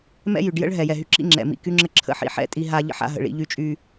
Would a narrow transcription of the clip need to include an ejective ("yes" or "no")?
yes